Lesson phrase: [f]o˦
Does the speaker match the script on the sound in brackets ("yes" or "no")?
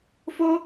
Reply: yes